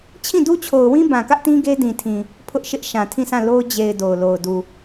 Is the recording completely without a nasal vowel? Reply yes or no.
no